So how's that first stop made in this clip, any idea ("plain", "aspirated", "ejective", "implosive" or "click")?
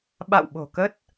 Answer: implosive